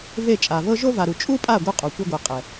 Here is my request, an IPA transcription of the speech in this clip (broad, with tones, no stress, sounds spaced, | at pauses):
v e˦˨ t͡ʃʼ a˨ v ɤ˦ ʒ o˦ v a˨ ɾ u˨ t͡ʃʼ u˦ pʼ a˦˨ ɡʷ ɯ˧ qʼ o˨ kʷ i˧ ɡʷ ɛ˨ qʼ ɛ˨